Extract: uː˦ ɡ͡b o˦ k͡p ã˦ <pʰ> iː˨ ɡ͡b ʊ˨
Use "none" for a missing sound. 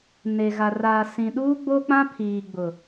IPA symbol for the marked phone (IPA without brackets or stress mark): pʰ